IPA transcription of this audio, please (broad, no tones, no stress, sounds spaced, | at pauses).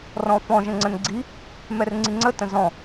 r ɔ̃ f ɔ̃ ʒ ə̃ ŋ͡ǀ ə̃ n ɡ͡ǀ i | m ɛ r ŋ͡ǀ i ŋ͡ǀ ə t ə̃ z ɔ̃